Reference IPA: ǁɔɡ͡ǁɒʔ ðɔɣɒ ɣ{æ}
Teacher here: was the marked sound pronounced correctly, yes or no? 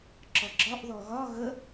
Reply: no